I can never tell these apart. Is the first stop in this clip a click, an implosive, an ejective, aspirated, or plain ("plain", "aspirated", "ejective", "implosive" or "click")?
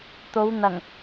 plain